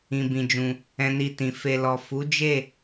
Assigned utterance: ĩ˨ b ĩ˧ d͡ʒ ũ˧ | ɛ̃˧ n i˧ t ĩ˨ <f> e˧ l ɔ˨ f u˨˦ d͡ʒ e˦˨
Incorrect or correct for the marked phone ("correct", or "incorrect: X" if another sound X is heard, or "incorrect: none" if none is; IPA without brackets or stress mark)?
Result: correct